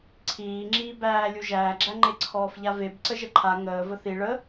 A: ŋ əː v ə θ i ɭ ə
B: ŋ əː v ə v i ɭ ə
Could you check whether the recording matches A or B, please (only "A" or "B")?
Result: A